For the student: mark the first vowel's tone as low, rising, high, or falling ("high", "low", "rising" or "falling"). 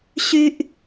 high